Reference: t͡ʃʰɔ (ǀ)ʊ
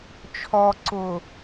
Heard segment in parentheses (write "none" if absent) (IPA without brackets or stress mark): ǀ